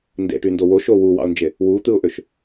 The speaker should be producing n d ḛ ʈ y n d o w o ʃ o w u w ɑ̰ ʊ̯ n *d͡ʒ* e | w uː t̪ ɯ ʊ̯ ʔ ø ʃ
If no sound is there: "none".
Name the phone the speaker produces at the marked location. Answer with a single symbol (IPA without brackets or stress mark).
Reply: d͡ʒ